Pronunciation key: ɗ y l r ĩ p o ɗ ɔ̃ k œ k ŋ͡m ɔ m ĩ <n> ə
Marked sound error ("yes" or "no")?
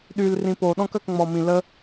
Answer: yes